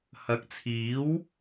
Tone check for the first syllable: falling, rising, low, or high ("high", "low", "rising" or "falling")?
rising